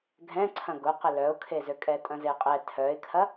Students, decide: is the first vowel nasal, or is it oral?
nasal